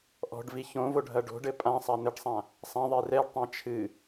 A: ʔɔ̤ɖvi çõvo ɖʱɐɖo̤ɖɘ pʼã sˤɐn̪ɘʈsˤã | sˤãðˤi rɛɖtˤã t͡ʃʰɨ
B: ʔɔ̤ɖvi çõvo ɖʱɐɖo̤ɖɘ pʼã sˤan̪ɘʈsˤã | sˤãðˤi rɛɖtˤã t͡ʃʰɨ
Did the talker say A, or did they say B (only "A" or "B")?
B